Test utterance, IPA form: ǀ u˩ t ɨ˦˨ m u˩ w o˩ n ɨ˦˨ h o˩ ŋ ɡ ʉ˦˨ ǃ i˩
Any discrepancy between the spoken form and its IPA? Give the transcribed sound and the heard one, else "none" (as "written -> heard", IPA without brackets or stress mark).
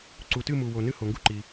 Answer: ʉ˦˨ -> u˦˨